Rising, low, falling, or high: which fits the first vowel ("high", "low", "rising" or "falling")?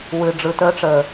low